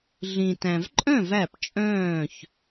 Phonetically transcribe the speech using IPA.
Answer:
ɮĩ˨tæ̃˨v ǃʼœ̃˥˨v æ˥˨pt͡ʃʼœ̃ː˥˨ç

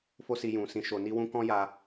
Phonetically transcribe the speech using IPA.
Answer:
fo˦si˧jũ˨ sĩ˨ʃo˨ni˧wũ˧ kɔ̃˦ja˧

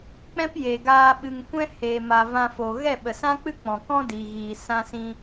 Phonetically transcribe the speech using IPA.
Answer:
k͡pɛ̃˦pje˨ɡaː˧ ɓɨ˨ŋ kʷɛ̃˦heː˨ ma˨vã˧fo˨ ɣɛ˦˨ɓə˨sã˦k͡pɨ˦ k͡pɔ̃˨kɔ̃˦diː˨ɣiː˨ sã˦sĩ˦

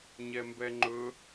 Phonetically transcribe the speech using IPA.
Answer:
ɲɛmbɛŋ͡ǃɵ

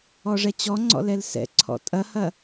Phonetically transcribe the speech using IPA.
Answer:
ɔʐɛt͡ɕɔŋ͡ǀɔ̰ lɛlsɛ̰ǀʰɔ̰ tʼɐhɐ

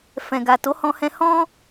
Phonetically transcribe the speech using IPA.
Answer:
fɛ̃˨ɡa˨ to˨˦hɔ̃˧hɛ̃˧ hɔ̃˦

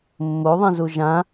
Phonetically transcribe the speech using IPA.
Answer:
mːoðˤĩzu ʒã

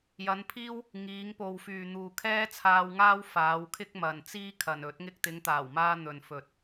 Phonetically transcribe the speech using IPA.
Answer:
jɐ˨˧npʰiː˥w | ŋiː˨˧ŋpo˨wfyː˨ n̪uː˨kʰɛː˥t͡sʰaː˧wŋaː˥w faː˨˧w kʰɪ˥k̚mɐ˨nt͡siː˥kʰɐ˨n ɵ˨˥t̚ŋɪ˥k̚ t̪ɪ˨˧ŋt̪aː˨˩wmaː˧ n̪ɵ˨nfɵ˨t̚

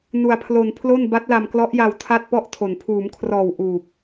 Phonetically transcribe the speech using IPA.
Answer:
nu˧a̯pʰlo˧npʰlo˥˩n ba˦˥t̚la˧mklɔ˦˥ʔja˧w tʰa˥˩t̚pɔ˥˩ʔtʰo˨˩n pʰuː˩˦mkʰrɔː˨˩w ʔuː˨˩p̚

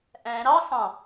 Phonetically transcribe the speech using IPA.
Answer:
ʔæ̃ ɾɑ xɑ̃

